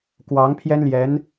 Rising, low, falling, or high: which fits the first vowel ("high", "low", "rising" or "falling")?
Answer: rising